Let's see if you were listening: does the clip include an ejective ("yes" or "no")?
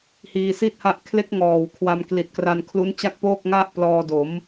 no